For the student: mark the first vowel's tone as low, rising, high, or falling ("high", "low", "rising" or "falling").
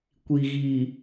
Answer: low